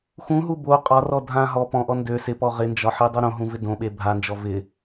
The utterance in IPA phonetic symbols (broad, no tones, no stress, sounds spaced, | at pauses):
x ũ ɦ u b o qʼ ɒ r ɔ dʱ ã ɦ ɔ p ɔ̃ ʔ ɔ n d ø s ɪ p ɔ ʁ ɪ n d͡ʒ ɒ ħ e dˤ o ɾ õ ɦ ũ v ɪ d õ ɓ e bʱ a n d͡ʒ ɔ v ɪ